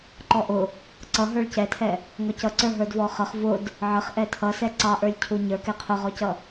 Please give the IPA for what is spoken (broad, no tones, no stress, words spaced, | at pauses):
ǃɔʔʊ | ǀʌɦə˞ɭ cɛtʰɛ | ŋɔcʌ ǀə˞ɦə˞dvɔχʌχ vʊd | ʕəχʔɛ tʰʌsɛ ǀɑʔə˞lʲcʰu ɲə˞kɛ qʰʊʁɔcʌ